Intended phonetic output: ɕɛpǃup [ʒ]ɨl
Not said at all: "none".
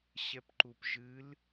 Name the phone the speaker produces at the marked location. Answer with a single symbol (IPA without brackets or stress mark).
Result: ʒ